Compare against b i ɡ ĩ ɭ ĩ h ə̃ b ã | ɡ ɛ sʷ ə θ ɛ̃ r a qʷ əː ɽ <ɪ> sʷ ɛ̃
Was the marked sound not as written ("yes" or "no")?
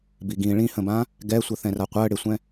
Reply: no